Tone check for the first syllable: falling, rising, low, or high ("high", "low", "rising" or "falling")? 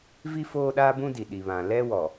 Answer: high